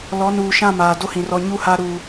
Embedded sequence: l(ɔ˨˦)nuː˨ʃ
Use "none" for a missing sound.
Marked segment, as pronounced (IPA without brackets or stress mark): ɔ˨˦